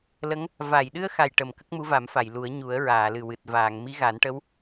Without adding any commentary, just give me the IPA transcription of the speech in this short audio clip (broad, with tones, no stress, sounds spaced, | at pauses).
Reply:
l ə˧˥ ŋ | v a˨˩˨ j ɗ ɨ˧ ə̯ x a˨˩ j ʈ ə˨˩˨ m k ə˦˥ k̚ m u˧˥ v a˨˩˦ m f a˨˩˨ j l u˨˩˦ ə̯ ɲ u˨˩˦ ə̯ ɹ aː˨˩˨ l ɨ˨˩ w ɨ˨˩ t̚ v aː˨˩˨ ŋ m i˧˥ ɣ a˨˩˦ n ʈ ə˧˥ w